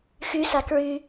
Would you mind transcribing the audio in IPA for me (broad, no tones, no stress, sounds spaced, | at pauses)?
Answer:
x y s a k ɹ y